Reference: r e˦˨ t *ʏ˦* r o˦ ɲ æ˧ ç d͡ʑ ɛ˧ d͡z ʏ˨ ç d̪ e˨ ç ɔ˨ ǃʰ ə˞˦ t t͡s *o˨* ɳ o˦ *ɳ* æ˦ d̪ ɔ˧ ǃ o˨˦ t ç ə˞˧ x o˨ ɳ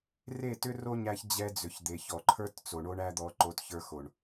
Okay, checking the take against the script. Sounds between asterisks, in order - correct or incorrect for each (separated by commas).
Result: correct, correct, correct